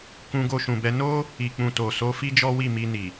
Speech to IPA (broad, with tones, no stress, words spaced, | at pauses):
kũ˧ɡo˧ʃũ˨bɛ˧ no˦ | i˨k͡pũ˨to˨so˨˦ fi˦d͡ʒɔ˦wi˦˨ mi˧ni˨